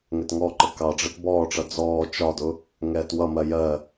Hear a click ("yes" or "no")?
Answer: yes